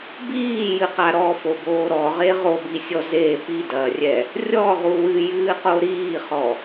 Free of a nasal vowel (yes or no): yes